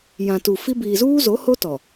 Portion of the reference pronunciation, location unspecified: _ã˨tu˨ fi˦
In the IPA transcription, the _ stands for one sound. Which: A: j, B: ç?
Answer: A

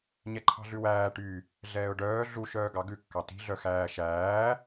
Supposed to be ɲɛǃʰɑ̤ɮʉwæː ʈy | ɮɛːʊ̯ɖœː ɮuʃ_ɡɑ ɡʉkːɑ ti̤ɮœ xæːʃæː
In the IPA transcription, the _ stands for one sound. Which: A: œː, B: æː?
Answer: A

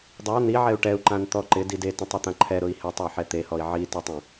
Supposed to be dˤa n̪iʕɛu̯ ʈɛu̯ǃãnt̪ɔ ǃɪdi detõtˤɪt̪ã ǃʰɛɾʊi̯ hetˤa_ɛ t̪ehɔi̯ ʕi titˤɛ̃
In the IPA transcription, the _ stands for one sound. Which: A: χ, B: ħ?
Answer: B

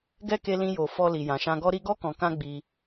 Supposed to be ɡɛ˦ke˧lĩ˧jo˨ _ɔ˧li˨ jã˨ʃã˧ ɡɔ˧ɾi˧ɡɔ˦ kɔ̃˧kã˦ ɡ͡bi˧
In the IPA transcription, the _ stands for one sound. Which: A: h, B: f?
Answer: B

